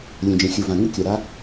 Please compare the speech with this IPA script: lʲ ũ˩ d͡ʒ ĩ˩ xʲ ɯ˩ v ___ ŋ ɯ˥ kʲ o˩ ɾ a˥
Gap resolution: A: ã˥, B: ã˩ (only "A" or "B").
B